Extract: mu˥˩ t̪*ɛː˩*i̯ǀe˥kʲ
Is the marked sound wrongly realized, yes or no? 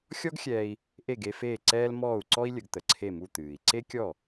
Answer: yes